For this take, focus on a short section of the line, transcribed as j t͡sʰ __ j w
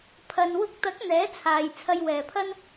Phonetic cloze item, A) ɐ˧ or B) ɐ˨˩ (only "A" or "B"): A